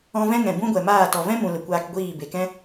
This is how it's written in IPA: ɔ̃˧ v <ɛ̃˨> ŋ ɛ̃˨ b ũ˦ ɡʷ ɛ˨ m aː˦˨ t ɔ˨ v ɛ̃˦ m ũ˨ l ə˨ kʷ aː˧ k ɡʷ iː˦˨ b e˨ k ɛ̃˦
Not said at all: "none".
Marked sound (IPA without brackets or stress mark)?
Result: ɛ̃˦